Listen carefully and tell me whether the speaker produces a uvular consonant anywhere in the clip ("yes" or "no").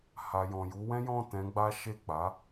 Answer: no